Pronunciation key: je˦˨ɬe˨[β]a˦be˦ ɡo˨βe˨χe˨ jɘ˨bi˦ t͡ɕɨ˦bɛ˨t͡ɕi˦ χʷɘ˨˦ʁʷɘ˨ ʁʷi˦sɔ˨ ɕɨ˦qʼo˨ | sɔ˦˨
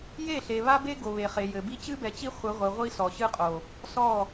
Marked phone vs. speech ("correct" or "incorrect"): correct